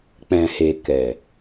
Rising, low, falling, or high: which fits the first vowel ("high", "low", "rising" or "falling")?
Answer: low